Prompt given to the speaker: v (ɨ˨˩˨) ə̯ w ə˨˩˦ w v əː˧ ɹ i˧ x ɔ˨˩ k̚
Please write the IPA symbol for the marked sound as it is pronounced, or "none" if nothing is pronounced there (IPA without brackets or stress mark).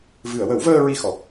ɨ˨˩˨